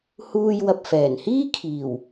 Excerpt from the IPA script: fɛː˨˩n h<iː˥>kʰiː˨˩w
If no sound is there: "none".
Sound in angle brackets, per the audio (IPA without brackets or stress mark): iː˥